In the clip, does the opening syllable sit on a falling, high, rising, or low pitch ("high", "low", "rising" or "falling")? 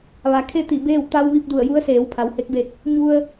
low